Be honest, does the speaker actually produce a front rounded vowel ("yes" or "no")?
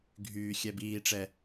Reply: yes